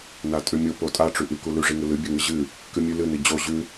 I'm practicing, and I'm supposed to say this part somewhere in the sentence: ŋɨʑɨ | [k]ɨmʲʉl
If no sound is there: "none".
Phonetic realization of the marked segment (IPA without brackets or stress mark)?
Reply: k